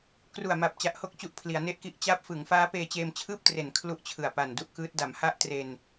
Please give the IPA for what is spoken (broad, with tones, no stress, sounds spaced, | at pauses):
k r u˨˩ a̯ m a˨˩ p̚ t͡ɕ a˨˩ ʔ h o˦˥ k̚ t͡ɕ u˨˩ ʔ pʰ l i˩˦ a̯ n e˥˩ ʔ k i˥˩ ʔ t͡ɕ a˦˥ p̚ f ɯ˩˦ ŋ f aː˦˥ p eː˧ t͡ɕ eː˧ m t͡ɕʰ ɯː˥˩ p̚ t r e˩˦ n kʰ l u˥˩ ʔ t͡ɕʰ ɯ˨˩ a̯ p a˨˩ n d u˥˩ ʔ k ɯː˦˥ t̚ d a˩˦ m h a˥˩ ʔ t r e˧ n